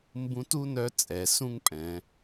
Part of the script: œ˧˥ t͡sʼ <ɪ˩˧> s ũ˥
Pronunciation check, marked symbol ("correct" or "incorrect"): incorrect